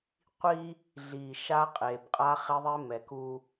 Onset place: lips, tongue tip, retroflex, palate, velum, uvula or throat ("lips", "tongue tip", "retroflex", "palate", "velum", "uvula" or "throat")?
uvula